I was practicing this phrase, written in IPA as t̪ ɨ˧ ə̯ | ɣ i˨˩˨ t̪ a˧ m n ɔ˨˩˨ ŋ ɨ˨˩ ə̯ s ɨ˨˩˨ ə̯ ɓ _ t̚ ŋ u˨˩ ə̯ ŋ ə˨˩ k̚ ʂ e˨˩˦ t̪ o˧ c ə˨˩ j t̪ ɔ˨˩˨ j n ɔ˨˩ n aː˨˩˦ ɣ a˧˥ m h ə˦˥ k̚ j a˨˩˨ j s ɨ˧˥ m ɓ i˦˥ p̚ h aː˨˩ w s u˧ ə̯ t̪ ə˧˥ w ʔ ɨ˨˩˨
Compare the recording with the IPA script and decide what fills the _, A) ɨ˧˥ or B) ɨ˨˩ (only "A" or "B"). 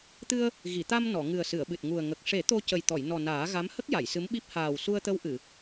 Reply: B